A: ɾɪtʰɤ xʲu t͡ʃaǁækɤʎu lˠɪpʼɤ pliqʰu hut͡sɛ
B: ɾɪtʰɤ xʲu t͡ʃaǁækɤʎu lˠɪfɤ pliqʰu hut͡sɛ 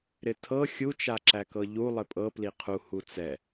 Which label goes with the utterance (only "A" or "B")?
A